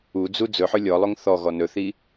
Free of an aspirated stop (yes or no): yes